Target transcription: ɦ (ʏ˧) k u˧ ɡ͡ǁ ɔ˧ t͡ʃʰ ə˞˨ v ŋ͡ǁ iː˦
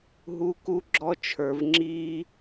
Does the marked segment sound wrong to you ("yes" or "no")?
yes